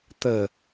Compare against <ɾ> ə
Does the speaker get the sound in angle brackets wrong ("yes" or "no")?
yes